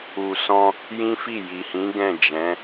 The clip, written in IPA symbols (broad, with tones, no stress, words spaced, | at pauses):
u˨sɔ̃˧ | jĩ˦fi˦˨ ji˨hĩ˨˦ ɡɛ̃˦˨d͡ʒɛ̃˨˦